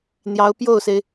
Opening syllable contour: rising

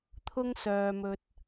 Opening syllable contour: high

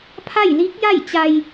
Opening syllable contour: falling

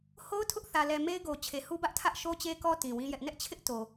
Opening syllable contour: high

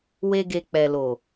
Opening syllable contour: high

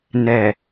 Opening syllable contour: low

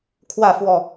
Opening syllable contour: falling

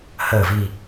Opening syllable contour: low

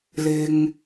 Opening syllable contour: low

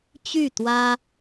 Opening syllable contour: falling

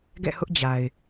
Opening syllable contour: falling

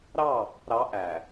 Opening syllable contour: falling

